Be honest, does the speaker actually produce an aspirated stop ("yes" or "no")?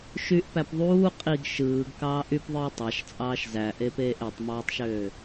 no